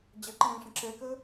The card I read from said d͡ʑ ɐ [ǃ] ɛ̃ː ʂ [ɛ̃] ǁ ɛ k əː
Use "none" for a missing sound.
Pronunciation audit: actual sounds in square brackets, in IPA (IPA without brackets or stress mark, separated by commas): ǃ, ə̃